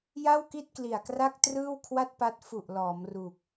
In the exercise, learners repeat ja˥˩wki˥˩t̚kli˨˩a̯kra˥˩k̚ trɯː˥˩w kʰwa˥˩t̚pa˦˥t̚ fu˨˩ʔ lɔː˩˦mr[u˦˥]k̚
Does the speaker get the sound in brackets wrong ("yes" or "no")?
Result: yes